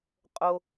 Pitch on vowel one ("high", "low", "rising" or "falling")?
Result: low